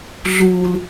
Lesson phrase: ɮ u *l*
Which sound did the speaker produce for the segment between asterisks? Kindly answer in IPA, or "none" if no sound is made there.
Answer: l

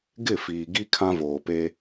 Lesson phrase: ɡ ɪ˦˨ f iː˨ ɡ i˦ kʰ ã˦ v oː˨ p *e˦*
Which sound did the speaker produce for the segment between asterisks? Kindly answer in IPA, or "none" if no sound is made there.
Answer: e˦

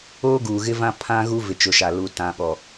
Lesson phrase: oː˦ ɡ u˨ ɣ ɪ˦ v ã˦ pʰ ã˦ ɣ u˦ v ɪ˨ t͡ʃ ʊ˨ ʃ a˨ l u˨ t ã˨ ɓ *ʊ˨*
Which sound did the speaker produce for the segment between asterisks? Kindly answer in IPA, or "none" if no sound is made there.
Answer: ɔ˨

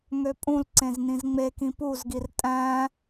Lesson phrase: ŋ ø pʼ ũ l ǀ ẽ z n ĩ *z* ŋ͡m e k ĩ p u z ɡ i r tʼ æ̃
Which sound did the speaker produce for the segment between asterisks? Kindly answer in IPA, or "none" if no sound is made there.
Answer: z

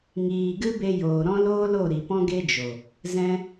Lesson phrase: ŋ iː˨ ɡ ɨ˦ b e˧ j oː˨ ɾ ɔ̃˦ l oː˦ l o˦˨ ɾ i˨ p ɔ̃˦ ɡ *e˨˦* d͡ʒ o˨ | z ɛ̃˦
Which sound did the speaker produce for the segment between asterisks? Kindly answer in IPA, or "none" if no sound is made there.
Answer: e˦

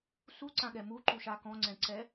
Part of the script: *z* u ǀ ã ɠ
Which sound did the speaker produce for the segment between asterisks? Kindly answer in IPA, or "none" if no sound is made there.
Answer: s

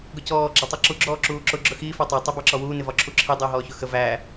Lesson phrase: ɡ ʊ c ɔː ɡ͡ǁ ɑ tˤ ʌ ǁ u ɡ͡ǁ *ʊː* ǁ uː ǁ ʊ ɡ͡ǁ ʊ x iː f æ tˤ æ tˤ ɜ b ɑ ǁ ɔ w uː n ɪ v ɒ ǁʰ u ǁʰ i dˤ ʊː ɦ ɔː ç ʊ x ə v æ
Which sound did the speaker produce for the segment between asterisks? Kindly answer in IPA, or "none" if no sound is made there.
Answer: ɔː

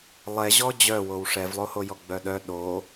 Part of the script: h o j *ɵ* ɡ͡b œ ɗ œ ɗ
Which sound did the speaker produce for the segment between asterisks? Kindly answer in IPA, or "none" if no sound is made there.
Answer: ɔ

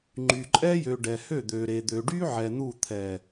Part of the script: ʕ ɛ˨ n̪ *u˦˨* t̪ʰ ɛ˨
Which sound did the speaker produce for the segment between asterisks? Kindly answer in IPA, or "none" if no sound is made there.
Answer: u˦˨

